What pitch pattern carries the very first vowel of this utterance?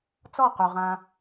falling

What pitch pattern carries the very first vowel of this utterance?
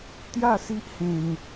falling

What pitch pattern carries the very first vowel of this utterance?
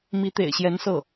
rising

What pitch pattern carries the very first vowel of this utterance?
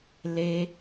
high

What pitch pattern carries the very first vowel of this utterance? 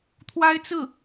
high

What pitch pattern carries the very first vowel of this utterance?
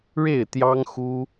falling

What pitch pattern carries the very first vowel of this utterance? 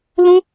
high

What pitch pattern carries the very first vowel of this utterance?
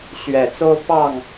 low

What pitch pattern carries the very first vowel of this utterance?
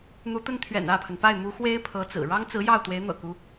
rising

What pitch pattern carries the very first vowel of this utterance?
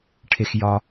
high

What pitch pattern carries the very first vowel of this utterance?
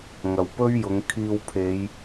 low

